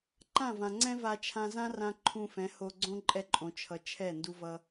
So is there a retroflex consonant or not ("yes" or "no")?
no